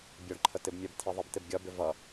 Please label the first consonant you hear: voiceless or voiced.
voiced